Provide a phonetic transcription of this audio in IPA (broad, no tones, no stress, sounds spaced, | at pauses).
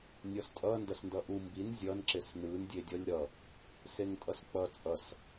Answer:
nʲ ʌ s tʼ ʌ n d ʌ s n d ʌ ʔ u m b i n zʲ ʌ n ǁ e s n ɯ n dʲ e dʲ ʌ lʲ ɾ ʌ | s e ŋ tʼ ʌ s k͡p ʌ t͡sʼ ʌ s